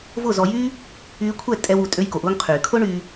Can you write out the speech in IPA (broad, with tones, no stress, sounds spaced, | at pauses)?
v ʊ˥˩ z ɔ˧ j yː˥ | yː˧ kʷʰ ɛ˥˩ tʼ ɛ˧ w u˩ tʼ ø˧ j k o˩ ʔ ʊː˧ ŋ qʰ yː˩ kʰ ʊ˥ ɳ yː˧